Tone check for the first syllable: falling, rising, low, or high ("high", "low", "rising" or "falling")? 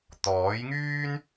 rising